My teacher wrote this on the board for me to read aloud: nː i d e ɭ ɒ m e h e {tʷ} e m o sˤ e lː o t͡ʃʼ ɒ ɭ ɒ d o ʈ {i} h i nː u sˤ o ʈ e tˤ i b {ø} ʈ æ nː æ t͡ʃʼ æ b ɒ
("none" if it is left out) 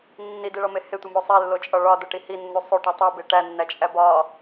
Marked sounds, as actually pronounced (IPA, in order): tʷ, i, e

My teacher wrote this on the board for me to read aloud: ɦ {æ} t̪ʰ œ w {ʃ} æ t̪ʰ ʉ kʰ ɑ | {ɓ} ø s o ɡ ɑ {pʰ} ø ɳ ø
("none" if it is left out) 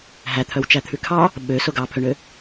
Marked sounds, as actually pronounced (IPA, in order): æ, t͡ʃ, ɓ, pʰ

